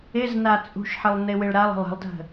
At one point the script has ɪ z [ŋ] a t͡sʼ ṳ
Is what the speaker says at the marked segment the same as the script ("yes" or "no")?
no